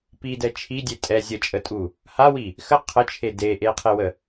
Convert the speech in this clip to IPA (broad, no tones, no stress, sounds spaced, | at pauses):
p i d ɛ t͡ʃʰ i dʲ e tʼ ɛ zʲ ə t͡ʃʼ ə tʼ u | h a w i | x ə qʰ ə t͡ʃʰ e d e ʔ e qʰ e w ə